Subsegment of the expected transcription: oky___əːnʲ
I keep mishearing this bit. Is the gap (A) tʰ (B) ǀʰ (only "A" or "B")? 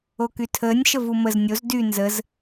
A